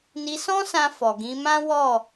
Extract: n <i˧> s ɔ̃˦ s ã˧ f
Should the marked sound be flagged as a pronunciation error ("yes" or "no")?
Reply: no